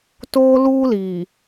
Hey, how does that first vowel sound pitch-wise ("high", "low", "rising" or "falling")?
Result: high